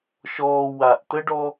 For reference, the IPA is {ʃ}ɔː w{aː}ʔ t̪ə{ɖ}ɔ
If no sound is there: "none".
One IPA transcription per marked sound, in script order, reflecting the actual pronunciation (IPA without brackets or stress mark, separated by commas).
ʃ, a, ɖ